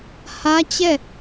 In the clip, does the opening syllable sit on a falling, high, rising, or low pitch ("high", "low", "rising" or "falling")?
high